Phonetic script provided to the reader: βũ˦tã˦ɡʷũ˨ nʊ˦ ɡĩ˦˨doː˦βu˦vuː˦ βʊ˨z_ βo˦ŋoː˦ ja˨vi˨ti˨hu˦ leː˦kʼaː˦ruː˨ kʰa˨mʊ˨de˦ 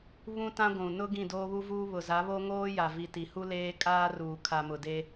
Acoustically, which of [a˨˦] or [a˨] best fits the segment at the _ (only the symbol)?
a˨˦